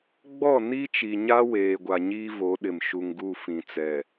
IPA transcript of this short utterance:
ɡ͡bɔ˦˨ ni˦t͡ʃi˨ɲa˦ weː˨ɡʷa˨ ɲiː˦vo˨˦ɗɪ˨m ʃu˨ŋɡu˦˨ fĩ˨t͡sɛ˨

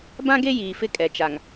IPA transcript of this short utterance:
bã˦ɡe˦ jiː˨fɪ˦kʼɛ˨ t͡ʃa˨ŋ

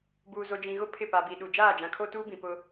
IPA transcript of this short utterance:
buː˨zo˨d͡ʒĩ˨ɣʊ˦ pʰɪ˦˨pa˨bi˨ɗu˨ d͡ʒaː˦˨d͡ʒã˨kʰo˦tuː˦ bĩ˨ pʊ˦

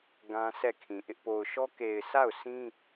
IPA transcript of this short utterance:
ɡã˦sʰɛ˦˨kʰĩ˨ʔɪ˦ʔ po˨ʊ̯ʃɔ˦ ke˨ɪ̯sa˦˨ʊ̯ sĩ˦

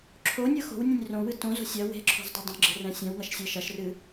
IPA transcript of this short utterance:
ǁʰonʲɤ xo̤wnʲẽnʲ rõwɨ tõzo̤ sʲɐ we̤ǁʰo̤zdˤɐ dˤõɡ͡ǁe̤rɛ̃ sʲɛ̃wŋɐʃsʲɤ ʃɐʃrɨ

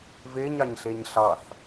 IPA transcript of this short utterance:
veɲ ɑɲɬeɲɬɑθ

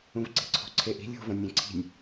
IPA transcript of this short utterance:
ũvǀi̤ǀʰo̤ǀʰe ʔi̤ lʲo̤ vɔ̃nʲẽǀʰi̤nʲ

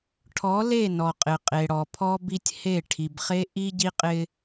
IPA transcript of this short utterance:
ʈʰɔ˨˦le˦˨ nɔ˨qʼɪ˨qʼe˨ ɽɔ˨pʰɔ˦bi˦tʲ he˦˨ ʈʰi˨bχe˦ ʔi˦ɟi˦qʼɪ˦

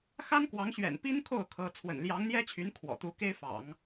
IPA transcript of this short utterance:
xa˥nkwɑ˧˥ŋ ɕɥɛ̰˨˩npi˥n kʰo˥˩ʊ̯kʰɤ˧˥ t͡sʰwə̰˨˩nljɑ˧˥ŋn̪jɛ˥t͡ɕʰy˧˥n kʰwɔ̰˨˩t̪u˧˥ke˥ɪ̯fɑ̰˨˩˦ŋ

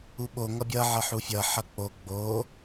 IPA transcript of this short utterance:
uɓo ŋʌbʲʌ ʕʌħufʲʌ ħʌk͡po ɡ͡bo

